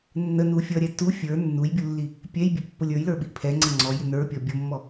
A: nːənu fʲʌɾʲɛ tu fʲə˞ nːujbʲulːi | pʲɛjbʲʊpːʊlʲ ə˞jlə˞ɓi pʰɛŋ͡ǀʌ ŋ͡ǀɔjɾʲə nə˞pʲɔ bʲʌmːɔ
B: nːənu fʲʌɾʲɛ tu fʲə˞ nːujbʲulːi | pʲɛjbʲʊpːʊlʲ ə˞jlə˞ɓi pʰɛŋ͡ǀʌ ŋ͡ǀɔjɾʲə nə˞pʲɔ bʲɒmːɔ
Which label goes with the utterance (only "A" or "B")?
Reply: A